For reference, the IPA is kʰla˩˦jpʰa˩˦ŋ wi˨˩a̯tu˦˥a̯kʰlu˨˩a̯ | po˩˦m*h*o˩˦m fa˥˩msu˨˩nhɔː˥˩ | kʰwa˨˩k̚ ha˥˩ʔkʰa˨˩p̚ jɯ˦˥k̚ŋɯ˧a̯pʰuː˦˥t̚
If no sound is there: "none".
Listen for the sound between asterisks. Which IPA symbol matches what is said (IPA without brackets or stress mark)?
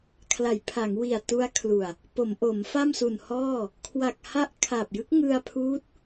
ʔ